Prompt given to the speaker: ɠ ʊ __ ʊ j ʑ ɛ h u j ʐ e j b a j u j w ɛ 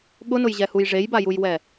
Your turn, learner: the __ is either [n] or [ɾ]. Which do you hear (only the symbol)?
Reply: n